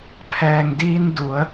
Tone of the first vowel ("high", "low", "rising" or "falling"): low